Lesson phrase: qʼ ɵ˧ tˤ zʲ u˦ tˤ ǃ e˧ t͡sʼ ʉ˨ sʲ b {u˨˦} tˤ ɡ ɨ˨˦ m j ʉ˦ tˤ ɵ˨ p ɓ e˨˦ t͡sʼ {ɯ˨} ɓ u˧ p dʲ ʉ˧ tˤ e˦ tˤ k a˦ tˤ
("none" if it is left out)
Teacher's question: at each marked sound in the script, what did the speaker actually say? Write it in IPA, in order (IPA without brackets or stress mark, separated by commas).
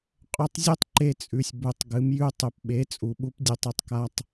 u˨˦, u˨